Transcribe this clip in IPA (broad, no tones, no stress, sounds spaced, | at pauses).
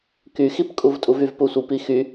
k y x i p kʼ u v tʼ u v y v p u sʷ i p i x y